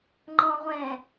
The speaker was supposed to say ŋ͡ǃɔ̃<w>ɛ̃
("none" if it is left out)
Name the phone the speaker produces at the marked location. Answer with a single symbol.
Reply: ʁʷ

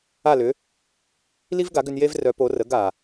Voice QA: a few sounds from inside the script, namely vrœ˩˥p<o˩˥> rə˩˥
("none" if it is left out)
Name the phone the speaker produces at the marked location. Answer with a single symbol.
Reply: o˩˥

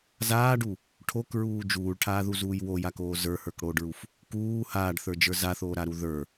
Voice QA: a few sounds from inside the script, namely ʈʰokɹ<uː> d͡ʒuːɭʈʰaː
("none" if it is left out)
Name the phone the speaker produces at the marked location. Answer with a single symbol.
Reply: uː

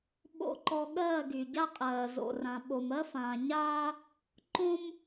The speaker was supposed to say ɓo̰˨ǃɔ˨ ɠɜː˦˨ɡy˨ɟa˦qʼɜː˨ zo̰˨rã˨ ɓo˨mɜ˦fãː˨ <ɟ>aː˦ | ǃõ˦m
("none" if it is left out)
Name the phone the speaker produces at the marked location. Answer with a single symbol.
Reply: ɲ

